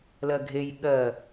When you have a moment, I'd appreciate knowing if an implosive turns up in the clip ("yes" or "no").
yes